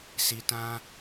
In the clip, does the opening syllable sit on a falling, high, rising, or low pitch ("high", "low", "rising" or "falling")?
low